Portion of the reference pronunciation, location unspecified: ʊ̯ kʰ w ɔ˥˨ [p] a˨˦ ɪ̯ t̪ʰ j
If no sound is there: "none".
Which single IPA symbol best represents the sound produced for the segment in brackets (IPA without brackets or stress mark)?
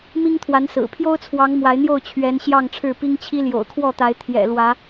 t̪